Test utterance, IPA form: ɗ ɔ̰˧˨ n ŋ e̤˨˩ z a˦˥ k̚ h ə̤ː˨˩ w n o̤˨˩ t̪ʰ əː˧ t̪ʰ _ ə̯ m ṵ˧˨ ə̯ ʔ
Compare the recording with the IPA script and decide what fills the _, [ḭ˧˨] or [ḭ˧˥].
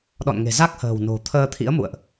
ḭ˧˥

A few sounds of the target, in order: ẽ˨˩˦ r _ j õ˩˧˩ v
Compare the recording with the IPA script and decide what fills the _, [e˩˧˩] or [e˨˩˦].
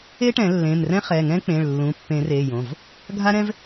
e˩˧˩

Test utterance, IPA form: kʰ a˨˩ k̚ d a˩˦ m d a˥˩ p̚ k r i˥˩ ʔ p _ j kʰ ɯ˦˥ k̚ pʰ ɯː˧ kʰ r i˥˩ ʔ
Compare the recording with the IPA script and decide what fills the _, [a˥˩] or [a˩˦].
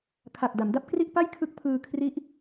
a˥˩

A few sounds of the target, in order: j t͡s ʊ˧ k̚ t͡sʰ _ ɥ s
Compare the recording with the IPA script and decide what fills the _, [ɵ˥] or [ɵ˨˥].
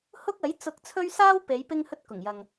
ɵ˥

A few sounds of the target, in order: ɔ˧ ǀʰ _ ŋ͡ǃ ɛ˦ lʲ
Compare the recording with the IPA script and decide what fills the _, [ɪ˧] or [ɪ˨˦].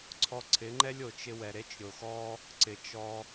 ɪ˨˦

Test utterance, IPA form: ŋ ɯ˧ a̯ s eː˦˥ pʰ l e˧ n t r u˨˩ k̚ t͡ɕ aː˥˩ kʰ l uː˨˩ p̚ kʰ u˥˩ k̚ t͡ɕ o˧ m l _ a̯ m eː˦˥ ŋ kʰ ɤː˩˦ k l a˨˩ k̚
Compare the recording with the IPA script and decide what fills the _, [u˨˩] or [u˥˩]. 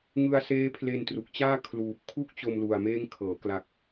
u˨˩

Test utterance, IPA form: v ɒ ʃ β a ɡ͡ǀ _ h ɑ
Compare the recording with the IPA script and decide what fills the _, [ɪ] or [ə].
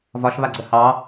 ə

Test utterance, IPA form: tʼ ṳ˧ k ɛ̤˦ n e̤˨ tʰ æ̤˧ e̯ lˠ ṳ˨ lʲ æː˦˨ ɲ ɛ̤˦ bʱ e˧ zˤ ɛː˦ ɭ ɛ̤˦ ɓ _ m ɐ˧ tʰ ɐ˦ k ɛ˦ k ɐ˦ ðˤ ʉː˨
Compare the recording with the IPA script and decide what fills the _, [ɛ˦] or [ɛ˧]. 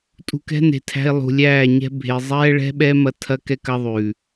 ɛ˦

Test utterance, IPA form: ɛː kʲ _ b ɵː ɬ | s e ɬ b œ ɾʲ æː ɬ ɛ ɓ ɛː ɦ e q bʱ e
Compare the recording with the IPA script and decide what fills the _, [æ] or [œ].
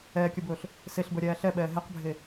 œ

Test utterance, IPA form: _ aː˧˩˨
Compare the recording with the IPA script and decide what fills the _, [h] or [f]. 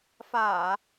f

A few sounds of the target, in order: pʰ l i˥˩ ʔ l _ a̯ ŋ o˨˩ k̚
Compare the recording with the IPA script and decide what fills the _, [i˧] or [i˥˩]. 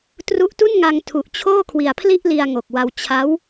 i˧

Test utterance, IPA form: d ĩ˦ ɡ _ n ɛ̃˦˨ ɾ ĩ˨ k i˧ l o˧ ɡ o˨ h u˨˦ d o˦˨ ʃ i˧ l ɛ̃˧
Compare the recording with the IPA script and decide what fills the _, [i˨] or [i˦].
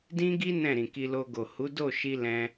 i˦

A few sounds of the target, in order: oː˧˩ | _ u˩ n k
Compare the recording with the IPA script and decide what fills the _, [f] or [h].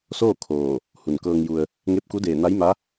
h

